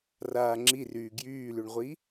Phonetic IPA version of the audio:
raːŋ͡ǁiryː ɡjyːlyɳʁʷi

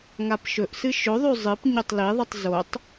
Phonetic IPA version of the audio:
ŋapʃɵʔsɨ ʃɵðˤʉ zˤɨp ɲotˤliðˤɨtˤ zotˤ

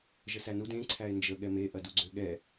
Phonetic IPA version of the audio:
ʒəsænud ẽ ǀʰæɪ̯nd͡ʒə ɠɛme ʔɐduɡ͡ǀøɠɛ

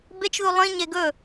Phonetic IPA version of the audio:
bet͡ʃðu lˠĩɲe ɡɵ

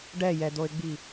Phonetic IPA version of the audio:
ɖɛjɛd̪oɪ̯ɡ͡bi

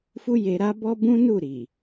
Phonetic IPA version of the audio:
fu˦je˧ɾa˦ bɔ˦bũ˦nu˦˨ ɾi˨

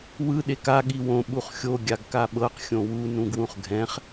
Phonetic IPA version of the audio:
wɯ ɗeka ɠiwõ ɓuχxʲo ɡʲaɡkaɓɤq xʲõwu nũɡwũχɡʱɛ̃χ

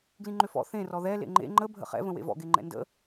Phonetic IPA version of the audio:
ɡlĩŋ͡ǃʏfɔ̰ θẽ rɔðɛ lḛŋ͡ǃḛ ŋ͡ǃə bʱə̰χɛ̰ və̃wḛvɔ̰ ɡeŋ͡ǃɛ̰ndə̰

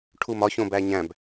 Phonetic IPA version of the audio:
ʈʰumɒçõbæ ɲæ̃b

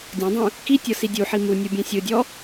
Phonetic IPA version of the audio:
dʲɔ̃dˤũ | kitʲɤ sidʲuħi mu nʲɯbʲɛ̃sʲɯdʲɔ

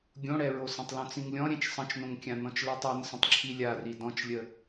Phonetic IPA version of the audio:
ɡʲõɽɛɹo sə̃tˤlõt͡sĩŋlʲɔ̃ ɾʲɛ̃t͡ʃsˤə̃t͡ʃnõŋkʲã nɔ̃t͡ʃlɛtˤ ɔnsə̃tˤ ǁʰilʲari dɔ̃t͡ʃlʲə

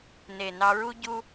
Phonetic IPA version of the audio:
ne˨ nɑ˧ɹu˦ ɟu˧

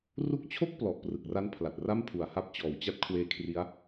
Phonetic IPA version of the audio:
ru˦˥k̚t͡ɕʰo˥˩k̚ plɔ˨˩ʔprɯ˨˩k̚ra˦˥n pʰla˨˩t̚ra˥˩mpʰu˨˩a̯ha˦˥p̚ t͡ɕɔː˩˦wt͡ɕa˦˥t̚kʰweː˧kʰri˦˥a̯

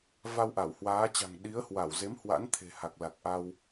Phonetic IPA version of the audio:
va˧wʔa˧˩w hwaː˨˦t͡ɕa̤˨˩ŋ ɗi˨˦ə̯hwa˧˩w ze˨˦mhwa̰˧˥nt̪ʰe̤˨˩ ha˨˩k̚la˨˩k̚ʔa˧w

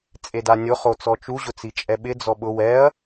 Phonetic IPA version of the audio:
t͡sʼedanʲʊ χot͡sɔt͡ʃu ʑʊt͡sit͡ʃʼɛɓɪ d͡zɔɓʊ wɛɐ̯

